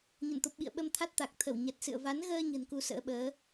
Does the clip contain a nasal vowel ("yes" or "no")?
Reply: no